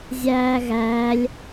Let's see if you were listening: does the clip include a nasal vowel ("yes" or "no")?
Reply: no